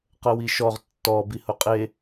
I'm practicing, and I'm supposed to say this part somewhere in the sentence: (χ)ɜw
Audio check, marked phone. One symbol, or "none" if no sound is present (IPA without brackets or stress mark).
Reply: q